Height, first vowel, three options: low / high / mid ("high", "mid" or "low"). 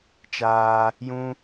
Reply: low